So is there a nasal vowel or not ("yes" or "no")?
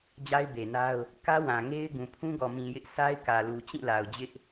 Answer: yes